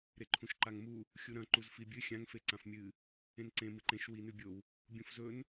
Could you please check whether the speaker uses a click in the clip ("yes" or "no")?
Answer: yes